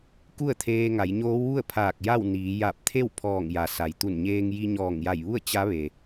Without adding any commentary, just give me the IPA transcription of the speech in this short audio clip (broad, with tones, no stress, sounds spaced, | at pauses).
k u˥˨ ə̯ t̪ʰ eː˧ ŋ a˩˧ j ɲ oː˧˥ w ʋ u˥˨ ə̯ pʰ aː˧˩ k̚ j a˥˨ w n iː˩˧ j a˧˩ p̚ t̪ʰ e˥˨ w pʰ ɔː˧˩ ŋ j a˩ s a˩ j t̪ u˧˩ n ɲ eː˧ ŋ j i˧ ɲ ɔː˧˩ ŋ j a˧˩ j ʋ u˥˨ ə̯ t͡ɕ a˧˥ ʋ e˩